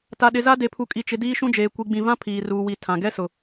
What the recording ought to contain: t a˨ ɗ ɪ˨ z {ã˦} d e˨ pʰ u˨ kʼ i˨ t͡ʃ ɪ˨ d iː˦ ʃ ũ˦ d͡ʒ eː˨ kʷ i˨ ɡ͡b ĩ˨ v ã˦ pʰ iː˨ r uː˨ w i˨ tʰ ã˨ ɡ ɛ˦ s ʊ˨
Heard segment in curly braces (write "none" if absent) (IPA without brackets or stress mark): a˦